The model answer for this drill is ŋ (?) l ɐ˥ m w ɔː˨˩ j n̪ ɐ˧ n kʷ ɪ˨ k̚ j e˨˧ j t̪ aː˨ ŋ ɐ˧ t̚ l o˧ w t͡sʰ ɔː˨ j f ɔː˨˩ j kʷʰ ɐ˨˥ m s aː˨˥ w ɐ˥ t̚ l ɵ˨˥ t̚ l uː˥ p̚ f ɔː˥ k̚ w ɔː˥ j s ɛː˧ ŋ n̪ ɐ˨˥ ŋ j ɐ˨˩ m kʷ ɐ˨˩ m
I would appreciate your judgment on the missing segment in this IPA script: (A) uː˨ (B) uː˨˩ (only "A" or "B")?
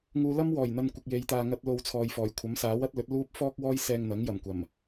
A